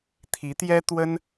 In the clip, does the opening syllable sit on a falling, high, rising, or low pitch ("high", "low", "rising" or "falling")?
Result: rising